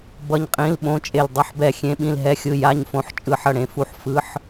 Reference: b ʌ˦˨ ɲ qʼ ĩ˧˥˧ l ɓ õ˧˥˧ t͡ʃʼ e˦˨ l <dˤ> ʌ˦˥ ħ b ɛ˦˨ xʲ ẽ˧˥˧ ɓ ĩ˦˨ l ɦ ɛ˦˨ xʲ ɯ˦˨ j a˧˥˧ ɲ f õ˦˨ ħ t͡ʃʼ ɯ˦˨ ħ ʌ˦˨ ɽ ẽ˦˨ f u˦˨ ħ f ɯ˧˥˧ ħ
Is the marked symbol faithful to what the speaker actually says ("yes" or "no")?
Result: yes